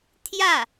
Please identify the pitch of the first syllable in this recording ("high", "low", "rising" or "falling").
falling